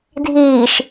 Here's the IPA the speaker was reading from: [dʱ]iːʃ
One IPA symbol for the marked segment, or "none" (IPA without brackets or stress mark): dʱ